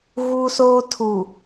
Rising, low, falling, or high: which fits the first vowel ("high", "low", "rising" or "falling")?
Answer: high